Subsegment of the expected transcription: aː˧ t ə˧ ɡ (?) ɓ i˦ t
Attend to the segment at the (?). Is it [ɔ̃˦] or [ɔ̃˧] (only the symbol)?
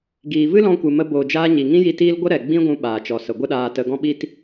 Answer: ɔ̃˦